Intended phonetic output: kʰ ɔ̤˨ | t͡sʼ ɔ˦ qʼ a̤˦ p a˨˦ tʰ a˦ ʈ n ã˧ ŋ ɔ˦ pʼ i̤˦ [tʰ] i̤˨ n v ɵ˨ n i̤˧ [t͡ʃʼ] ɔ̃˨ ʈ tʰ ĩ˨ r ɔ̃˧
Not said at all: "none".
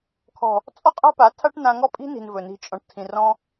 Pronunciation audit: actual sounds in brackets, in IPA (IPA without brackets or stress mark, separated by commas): n, t͡ʃʼ